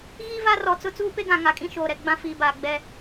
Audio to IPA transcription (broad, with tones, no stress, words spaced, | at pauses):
ɣiː˦va˦rɔ˨t͡sʊ˦ t͡suː˦pe˦ɡã˨ ŋa˨kʼĩ˦ʃoː˨ɾɛ˨ ɡ͡bã˦ fiː˨baː˨ ɡ͡bɛ˦